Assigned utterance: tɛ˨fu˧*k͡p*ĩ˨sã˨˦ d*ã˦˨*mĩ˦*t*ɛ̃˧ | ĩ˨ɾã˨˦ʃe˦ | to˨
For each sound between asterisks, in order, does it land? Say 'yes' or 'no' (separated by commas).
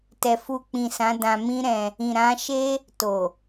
yes, no, no